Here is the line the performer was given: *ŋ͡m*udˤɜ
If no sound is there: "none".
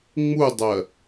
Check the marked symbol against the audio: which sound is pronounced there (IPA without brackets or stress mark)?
ŋ͡m